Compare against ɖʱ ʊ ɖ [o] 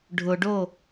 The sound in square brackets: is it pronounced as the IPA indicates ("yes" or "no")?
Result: yes